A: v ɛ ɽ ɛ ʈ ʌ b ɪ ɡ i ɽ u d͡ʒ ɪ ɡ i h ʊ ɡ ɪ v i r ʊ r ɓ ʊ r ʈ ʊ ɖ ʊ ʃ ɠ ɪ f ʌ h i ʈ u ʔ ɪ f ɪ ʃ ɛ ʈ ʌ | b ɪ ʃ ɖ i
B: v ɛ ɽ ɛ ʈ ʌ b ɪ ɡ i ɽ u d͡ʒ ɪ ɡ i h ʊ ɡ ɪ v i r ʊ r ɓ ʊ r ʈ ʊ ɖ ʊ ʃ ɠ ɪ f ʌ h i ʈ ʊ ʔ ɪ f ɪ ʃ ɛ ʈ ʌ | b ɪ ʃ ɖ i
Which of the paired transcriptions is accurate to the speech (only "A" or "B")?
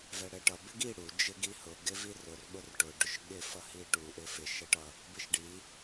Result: A